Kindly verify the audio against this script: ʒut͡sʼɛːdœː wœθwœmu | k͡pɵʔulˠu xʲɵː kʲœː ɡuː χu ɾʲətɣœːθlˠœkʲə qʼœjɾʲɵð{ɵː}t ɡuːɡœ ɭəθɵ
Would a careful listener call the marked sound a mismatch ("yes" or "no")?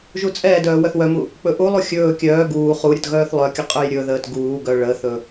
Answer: yes